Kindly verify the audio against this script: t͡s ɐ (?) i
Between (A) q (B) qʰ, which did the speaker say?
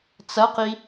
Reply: A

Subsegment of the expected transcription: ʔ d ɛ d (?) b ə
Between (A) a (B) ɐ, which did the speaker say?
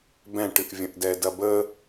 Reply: B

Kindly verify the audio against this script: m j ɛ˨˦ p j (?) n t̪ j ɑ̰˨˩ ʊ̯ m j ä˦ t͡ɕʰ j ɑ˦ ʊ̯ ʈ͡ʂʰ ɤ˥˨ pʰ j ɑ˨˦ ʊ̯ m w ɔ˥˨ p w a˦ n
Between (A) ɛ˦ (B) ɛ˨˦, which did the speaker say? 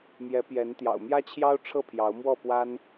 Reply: B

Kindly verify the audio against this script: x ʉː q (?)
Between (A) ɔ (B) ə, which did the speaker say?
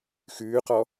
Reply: A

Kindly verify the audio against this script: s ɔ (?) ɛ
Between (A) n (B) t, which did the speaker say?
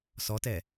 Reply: B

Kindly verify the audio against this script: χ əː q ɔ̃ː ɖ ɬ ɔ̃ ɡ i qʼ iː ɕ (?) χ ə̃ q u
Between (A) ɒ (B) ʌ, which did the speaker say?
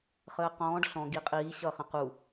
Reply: B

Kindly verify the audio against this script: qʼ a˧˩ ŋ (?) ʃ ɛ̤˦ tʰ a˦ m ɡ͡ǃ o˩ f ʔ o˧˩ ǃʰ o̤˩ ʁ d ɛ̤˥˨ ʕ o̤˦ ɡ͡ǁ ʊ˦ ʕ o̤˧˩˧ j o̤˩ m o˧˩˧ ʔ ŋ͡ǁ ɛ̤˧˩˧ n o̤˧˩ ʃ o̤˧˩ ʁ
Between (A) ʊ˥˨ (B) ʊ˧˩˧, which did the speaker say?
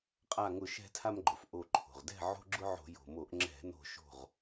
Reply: B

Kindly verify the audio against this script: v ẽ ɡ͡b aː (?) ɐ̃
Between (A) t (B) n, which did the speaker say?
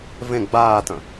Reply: A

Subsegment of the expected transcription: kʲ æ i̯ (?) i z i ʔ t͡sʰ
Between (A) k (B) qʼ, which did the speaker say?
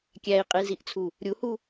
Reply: B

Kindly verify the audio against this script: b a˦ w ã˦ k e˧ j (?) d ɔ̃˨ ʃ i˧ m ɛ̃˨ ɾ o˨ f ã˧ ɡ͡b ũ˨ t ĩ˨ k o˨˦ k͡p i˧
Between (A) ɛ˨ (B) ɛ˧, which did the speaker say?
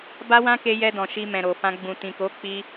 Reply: B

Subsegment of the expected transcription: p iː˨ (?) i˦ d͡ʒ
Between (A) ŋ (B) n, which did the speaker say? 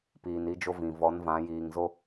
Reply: B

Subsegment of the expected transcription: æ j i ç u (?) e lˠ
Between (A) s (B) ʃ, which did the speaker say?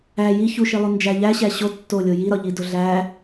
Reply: B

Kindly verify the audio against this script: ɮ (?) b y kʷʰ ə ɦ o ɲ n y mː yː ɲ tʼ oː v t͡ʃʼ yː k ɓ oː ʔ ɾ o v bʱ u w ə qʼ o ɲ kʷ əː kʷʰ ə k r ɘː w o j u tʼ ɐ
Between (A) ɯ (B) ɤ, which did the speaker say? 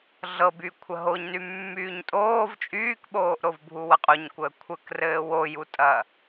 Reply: B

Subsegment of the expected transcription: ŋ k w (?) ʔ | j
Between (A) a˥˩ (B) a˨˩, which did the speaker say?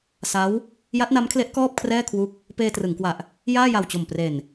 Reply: B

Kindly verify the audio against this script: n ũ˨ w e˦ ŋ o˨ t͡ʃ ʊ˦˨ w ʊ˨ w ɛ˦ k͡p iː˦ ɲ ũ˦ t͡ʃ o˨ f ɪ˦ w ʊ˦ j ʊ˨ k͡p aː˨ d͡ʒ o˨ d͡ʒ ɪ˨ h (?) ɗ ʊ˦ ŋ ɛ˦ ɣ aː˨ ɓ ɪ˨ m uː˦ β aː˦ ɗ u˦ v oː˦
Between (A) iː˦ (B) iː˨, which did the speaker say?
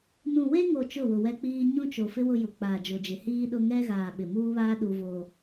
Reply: A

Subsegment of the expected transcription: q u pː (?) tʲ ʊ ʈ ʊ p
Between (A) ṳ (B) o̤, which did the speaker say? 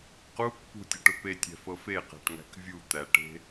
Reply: A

